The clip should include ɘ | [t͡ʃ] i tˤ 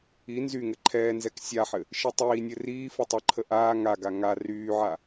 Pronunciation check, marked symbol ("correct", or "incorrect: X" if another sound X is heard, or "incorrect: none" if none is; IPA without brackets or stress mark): incorrect: ʃ